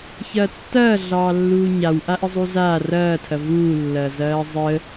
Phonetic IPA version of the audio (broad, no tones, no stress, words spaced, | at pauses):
çɐːtːɐː ɮɑːlːuːɲaw ʔaʔəzˤuzaː rɐːtʰɐ vuːlːɐː zɐːzˤəː